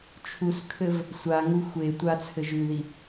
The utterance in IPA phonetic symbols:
t͡ʃʰ u s kʰ ɘ v | sʷ a ŋ u xʷ e tʷ a t͡sʰ ɘ ʒ ʉ ð i

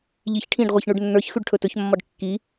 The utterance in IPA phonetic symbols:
ʎ i ç ʈʰ ĩ ɖ ʁʷ i ç ɳ ʉ ɖ nː ə˞ ç x ʉ ɖ ʈʰ ɵ t ɵ ç mː ɒ ɖ kː i

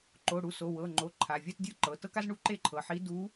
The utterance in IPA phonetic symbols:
ǃ o˩˧˩ ɽ u˩˧˩ s o˩˧˩ w ɤ˩˧˩ ŋ͡ǃ o˩˧˩ ǃʰ a˩˧˩ vʲ a˥˧ t dʲ ɯ˥˧ ǃ ɤ˩˧˩ t ɤ˥ k a˥ z ɳ u˥ ǃ e˥˧ ǃʰ ɤ˩˧˩ ħ i˧˥ d u˧˥

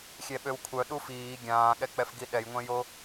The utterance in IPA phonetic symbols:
xʲ ɛ ɓ ø w kʷʰ œ ɗ u f iː ɡʲ ãː ɠ ɛ k͡p ɛ f ɡ i ɗ ɛ j ŋʷ ɛ̃ j o

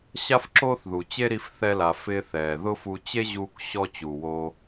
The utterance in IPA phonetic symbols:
ɕ a˦ f ǁ oː˦ θ ð u˨ t͡ɕ e˦ ɾ i˧ f θ ɛ˧ l a˨ f ɪː˧ θ ɛː˨ ð ʊ˦ f u˧ t͡ɕ e˦ ʑ uː˧ k ɕ ɔ˧ t͡ɕ u˨ w o˧

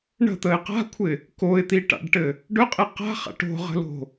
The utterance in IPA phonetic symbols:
ɳ ə̤ t̪ ə ɪ̯ q a̤ kʷʰ ɪ | k o ɪ̯ t̪ i ʈ a̰ ɖ ʈ ɘ | ɖ ɵ qʼ e q a̤ χ a̰ ʈ o̤ ʁ ə̤ l o̤

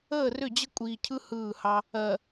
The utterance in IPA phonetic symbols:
əː˦˨ r ʏ˦˨ d͡ʑ ə˦ kʷʼ iː˨ cʰ ɯ˦ h ɯː˦˨ h ɑ˦ | ɜ˨

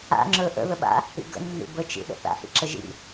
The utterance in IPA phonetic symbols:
a̰ ŋ͡ǁ ɵ ʔ ə̰ ð ə ɓ a̰ | ḭ ɡ ə̰ nː ḭ b ə t͡ʃ ḭ ɗ ə̰ θ a̰ h ḭ ǁ ə ʒ ḭ

